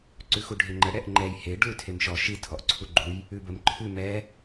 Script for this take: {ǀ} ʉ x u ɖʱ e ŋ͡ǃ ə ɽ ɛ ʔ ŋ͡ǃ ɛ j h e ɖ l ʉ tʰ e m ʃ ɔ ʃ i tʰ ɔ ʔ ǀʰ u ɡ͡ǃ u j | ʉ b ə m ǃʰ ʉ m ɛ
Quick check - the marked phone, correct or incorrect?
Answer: correct